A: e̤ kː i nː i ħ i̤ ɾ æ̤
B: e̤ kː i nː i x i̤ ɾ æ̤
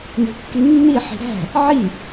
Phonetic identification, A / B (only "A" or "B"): A